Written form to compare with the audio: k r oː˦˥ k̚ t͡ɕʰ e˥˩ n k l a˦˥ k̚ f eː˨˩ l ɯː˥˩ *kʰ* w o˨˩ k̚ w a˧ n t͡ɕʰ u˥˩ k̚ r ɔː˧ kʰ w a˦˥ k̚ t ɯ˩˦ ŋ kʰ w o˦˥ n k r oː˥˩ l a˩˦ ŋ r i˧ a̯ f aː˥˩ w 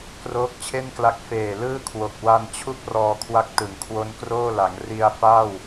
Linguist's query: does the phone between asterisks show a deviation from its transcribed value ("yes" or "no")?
no